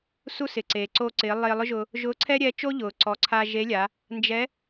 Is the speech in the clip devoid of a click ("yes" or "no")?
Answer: no